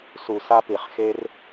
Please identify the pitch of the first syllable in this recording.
low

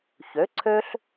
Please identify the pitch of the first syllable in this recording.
rising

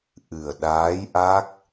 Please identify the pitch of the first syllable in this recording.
low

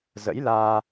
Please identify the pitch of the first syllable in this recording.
rising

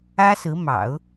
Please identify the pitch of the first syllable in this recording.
high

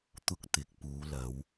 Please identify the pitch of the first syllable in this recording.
high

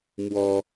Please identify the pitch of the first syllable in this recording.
high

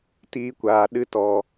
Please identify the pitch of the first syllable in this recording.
high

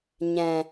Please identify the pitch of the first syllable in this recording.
low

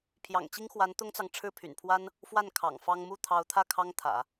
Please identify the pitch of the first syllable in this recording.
low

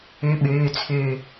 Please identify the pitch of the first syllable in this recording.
rising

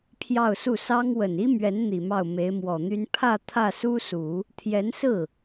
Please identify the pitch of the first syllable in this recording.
falling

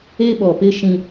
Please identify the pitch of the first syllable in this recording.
high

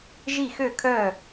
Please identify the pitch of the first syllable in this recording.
falling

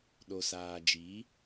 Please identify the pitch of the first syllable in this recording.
low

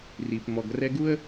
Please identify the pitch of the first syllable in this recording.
low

